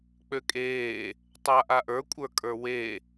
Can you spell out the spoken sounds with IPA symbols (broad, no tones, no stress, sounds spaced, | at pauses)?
k͡p ø kʼ eː | tˤ a ʔ a ʔ ə˞ kʷʼ ə˞ kʼ ə˞ w e